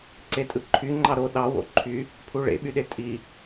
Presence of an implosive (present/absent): present